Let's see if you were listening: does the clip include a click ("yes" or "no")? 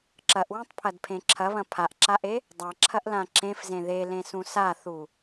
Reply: yes